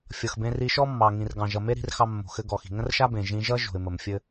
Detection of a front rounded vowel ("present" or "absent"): absent